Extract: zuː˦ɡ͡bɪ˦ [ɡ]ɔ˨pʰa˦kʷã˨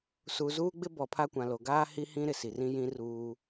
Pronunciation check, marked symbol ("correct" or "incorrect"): incorrect